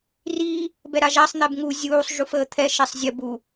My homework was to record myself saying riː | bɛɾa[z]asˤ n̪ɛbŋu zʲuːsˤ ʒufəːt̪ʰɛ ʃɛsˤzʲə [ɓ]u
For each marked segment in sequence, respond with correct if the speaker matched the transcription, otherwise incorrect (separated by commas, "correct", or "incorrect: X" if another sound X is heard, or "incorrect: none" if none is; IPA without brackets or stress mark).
incorrect: ʒ, incorrect: b